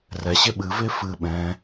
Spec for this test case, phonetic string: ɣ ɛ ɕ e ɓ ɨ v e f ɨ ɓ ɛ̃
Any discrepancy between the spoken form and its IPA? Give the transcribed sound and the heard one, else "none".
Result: ɣ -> r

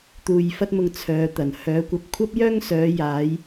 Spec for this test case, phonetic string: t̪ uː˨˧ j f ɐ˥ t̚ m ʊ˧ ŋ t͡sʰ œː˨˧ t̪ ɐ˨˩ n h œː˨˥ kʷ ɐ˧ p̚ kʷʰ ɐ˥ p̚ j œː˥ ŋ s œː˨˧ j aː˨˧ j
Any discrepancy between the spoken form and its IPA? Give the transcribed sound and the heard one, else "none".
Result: uː˨˧ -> uː˨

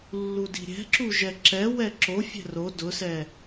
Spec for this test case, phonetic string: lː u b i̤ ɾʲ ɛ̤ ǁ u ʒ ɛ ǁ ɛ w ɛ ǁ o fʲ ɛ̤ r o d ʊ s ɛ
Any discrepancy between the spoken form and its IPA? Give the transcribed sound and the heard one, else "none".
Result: b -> d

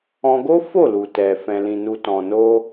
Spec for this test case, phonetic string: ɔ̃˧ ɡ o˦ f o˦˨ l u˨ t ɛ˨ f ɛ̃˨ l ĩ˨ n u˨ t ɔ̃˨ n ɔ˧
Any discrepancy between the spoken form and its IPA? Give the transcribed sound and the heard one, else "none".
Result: ɔ˧ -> o˧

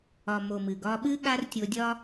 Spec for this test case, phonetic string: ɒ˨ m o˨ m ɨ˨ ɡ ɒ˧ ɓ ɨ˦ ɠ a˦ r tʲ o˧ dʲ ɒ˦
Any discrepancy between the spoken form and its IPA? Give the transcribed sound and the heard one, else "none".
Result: none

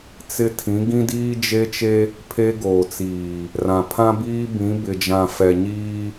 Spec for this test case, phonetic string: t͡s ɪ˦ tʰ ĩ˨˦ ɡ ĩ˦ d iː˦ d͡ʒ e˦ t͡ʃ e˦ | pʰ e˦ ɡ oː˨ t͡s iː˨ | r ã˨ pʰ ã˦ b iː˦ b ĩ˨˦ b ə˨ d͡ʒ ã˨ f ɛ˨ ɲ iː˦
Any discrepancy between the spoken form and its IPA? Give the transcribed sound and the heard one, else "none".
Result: ə˨ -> ɪ˨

